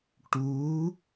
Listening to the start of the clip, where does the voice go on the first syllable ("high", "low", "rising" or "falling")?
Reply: rising